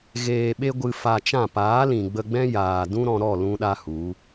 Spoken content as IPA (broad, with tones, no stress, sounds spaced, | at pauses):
ɣ eː˧ ɓ e˦ ɡʷ ɨ˧ f a˧ t͡ʃ ã˦˨ p aː˨˦ l ĩ˨ ɡ͡b ə˧ ɡ͡b ɛ̃˦ j aː˨ d ũ˦ ɾ ɔ̃˧ ɾ ɔ˦˨ l ũ˦ ɗ a˦ h u˨˦